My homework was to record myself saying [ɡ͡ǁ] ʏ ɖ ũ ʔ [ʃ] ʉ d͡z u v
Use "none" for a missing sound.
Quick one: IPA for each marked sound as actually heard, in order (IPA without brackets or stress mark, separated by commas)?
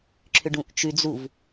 ǁʰ, t͡ʃ